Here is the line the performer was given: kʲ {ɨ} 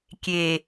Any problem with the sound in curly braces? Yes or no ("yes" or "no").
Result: yes